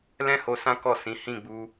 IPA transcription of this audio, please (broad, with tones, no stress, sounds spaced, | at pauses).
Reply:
l ɛ̃˦ h o˧ s ã˦ k ɔ˦˨ s ĩ˨˦ h ĩ˦˨ ɡ͡b u˧